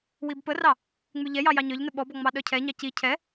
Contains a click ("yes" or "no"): no